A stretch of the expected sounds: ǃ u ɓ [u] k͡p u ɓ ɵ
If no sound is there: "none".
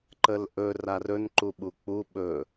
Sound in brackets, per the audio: u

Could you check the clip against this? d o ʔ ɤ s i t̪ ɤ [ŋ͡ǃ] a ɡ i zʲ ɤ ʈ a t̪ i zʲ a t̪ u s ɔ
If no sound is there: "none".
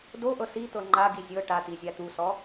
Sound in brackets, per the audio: ŋ͡ǃ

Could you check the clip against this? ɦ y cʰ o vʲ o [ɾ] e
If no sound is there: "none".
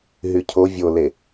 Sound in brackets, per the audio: l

